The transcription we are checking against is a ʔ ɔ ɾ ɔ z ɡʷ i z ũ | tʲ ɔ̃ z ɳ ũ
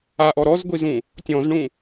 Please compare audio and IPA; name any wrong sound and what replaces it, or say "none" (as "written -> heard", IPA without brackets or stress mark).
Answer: none